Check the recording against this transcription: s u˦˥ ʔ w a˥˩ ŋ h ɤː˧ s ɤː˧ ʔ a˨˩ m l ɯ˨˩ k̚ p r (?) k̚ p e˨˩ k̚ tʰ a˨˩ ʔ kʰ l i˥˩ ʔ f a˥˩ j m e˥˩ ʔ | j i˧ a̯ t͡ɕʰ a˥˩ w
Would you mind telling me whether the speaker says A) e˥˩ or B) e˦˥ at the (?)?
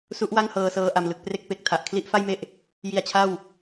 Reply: A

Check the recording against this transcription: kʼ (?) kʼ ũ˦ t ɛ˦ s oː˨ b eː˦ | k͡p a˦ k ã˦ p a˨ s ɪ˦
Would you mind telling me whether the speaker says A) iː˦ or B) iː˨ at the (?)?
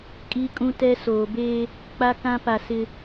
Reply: A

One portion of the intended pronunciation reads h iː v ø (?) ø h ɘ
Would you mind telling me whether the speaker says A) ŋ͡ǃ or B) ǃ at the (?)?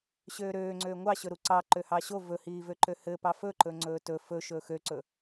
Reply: B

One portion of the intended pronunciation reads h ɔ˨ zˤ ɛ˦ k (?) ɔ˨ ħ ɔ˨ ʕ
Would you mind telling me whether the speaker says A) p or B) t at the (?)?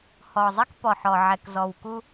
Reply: A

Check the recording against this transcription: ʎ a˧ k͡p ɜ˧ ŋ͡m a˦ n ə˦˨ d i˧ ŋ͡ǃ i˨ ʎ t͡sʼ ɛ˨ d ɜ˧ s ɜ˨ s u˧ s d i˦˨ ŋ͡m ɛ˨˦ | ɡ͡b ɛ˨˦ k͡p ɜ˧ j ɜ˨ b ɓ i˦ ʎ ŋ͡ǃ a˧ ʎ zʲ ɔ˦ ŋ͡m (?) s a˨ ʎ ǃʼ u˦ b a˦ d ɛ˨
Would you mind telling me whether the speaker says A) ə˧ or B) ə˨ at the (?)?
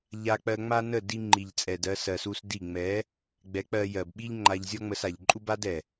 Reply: A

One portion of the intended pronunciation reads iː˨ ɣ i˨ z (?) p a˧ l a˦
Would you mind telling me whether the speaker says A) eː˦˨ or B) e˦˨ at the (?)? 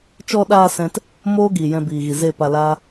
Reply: B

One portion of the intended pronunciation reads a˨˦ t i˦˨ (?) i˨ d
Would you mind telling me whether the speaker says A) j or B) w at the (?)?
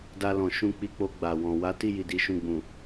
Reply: A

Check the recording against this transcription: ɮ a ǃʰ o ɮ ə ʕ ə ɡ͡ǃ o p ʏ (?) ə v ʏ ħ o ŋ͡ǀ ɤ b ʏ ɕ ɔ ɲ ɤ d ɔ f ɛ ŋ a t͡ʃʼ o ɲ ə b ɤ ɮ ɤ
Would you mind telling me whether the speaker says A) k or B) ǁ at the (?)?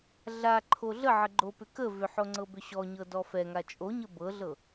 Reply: A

